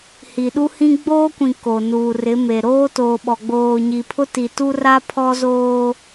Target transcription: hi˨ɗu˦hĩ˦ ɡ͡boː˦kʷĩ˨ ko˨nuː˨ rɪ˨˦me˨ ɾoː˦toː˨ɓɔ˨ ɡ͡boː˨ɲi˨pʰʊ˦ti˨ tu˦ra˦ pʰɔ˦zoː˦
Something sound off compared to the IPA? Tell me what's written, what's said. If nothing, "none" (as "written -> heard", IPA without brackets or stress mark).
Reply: none